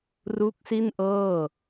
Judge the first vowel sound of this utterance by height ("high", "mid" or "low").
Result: high